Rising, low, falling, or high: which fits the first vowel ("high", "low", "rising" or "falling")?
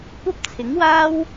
high